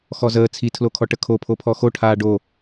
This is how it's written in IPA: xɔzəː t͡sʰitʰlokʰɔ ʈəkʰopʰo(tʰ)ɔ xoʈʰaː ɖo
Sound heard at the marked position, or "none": pʰ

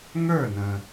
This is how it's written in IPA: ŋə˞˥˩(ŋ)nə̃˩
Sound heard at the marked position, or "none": none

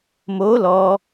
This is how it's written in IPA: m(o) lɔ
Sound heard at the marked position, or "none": o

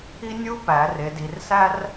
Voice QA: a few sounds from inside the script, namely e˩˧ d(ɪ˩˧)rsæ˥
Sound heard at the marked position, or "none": i˩˧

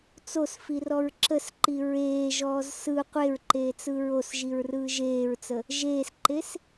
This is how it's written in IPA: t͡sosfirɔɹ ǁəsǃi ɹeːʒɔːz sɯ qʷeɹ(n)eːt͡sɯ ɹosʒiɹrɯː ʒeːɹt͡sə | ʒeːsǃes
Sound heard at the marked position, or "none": ǃ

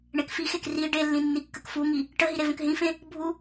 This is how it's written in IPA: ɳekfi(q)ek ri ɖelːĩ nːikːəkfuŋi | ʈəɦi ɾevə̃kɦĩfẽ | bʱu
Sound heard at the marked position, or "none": x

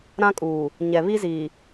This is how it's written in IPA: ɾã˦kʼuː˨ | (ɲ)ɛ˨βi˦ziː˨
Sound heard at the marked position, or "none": ɲ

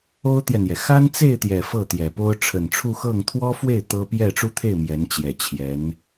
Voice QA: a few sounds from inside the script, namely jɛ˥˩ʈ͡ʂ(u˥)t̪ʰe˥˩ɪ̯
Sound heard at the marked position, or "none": u˥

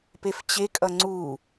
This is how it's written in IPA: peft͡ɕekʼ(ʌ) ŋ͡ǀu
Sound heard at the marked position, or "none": ʌ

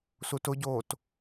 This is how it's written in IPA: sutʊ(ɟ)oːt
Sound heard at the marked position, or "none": ɟ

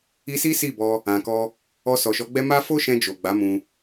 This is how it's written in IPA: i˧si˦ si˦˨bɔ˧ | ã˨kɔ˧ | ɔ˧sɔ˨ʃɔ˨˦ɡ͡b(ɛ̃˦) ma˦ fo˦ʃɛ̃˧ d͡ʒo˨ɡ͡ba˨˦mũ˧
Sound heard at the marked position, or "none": ɛ˦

